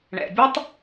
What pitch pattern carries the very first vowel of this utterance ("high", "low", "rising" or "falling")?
low